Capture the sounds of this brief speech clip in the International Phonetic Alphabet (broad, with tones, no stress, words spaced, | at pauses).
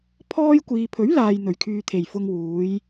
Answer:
pʰɔː˥j kʷiː˨pʰɵ˨˥ɥlaː˨j n̪ɵ˨˩ɥkʰyː˨t̪ʰe˨˩j fʊ˧ŋwuː˨˧j